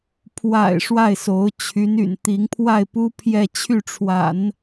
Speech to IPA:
pʰwa̰˨˩ɪ̯ ʂwa˥˩ɪ̯so˧˥ʊ̯ t͡ɕʰy˧˥ny̰˨˩nt̪i˧˥ŋpʰwa˥˩ɪ̯ pu˥pʰjɛ˥˧ t͡ɕʰy˥˩ʈ͡ʂʰwa̰˨˩˦n

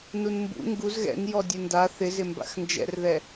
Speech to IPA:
nunmbṵ ŋɡuz ɣɛ̰n jɔdʲenda θɪzɪmba̰x nd͡ʒɛ̰rðɛ

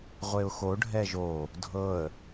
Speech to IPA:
ʁʷeʊ̯xo ɖʱɛʒo | dʱɤə̯

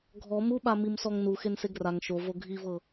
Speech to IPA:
ɡʱɔ muɓa mimsɔŋnu xenseɡraŋ ʃovo ɡʱivɤ

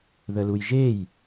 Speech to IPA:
ðəlujʒej

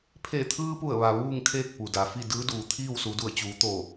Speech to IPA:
pʰe˧˩t̪ʰɯː˧pu˧˩ə̯ʋa˩ ʋuː˥˨ŋ kʰeː˥˨k̚pu˩da˩fi˥˨ dɯː˧˥duː˩t̪ʰiː˥˨w su˩˧du˧˩ə̯t͡ɕuː˩˧t̪oː˧˩

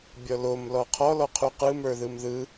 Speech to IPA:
bʲɔlom lɔqʰɔ lɔqʰuqɯ mə˞ðɯmðɯ

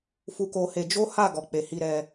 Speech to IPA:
fu˧ko˧he˧ d͡ʒo˦ha˦˨ ɡɔ˨k͡pe˨hi˧ ɾɛ˧

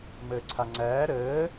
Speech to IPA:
məːǀʰaŋ͡ǀæː ɾəː

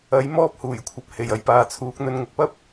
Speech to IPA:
ɐ˨˥j mɔː˥p̚huː˨˩jkʷʰɐ˨p̚ he˨˩jɐ˨jpaː˨t͡sʰuː˨˥k̚ n̪ɵ˨˧nŋʊ˨k̚pɐ˥p̚

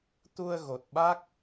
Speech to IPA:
t̪u˧ə̯ɣo˨˩t̚ɓa˦˥k̚

